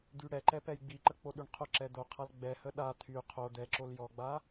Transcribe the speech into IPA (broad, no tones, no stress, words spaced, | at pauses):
d̪yɽɛǃɛ pɛjɡ͡biǃə k͡poɗyɳqʰoǁɛ d̪oqʰal ɡ͡bɛhə ɗa t̪ʰy qʰo d̪ɛǁol jɔɡ͡ba